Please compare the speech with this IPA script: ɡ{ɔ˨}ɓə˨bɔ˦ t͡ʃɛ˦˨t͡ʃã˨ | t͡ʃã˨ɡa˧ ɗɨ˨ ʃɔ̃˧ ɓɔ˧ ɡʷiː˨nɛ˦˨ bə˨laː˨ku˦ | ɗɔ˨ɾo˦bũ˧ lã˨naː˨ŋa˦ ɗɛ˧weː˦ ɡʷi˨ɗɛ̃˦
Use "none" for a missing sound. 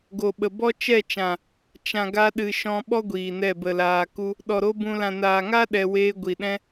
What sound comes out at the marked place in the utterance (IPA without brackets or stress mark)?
o˨